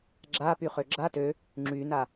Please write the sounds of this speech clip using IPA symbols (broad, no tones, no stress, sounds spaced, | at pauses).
ɡ͡ǁ a p y χ ø ɡ͡ǁ a t ø | ŋ͡ǁ y n a